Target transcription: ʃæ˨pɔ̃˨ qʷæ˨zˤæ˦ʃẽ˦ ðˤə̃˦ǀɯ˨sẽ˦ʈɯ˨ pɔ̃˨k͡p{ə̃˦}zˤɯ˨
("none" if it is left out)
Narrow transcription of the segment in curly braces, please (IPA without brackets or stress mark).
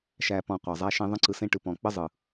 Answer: ə˦